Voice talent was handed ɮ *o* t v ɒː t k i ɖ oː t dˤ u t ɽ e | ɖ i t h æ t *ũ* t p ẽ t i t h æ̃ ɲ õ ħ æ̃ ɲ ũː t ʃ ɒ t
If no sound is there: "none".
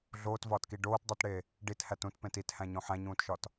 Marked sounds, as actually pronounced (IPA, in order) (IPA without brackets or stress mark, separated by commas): oː, ũ